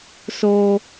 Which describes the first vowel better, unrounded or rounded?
rounded